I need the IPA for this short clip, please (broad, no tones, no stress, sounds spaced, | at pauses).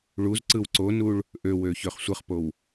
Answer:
ɭ u z ǀ ɯ w ǀ o n u ɭ | ʔ ø w ø ç ø χ sʷ ɯ χ p o w